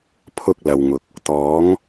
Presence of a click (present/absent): absent